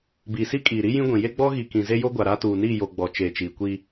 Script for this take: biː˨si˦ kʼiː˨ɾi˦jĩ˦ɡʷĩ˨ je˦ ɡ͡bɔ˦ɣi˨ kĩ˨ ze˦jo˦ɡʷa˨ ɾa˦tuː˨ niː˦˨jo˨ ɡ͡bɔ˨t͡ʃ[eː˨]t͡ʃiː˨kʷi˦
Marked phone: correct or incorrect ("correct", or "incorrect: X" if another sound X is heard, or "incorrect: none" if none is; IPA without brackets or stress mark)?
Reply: correct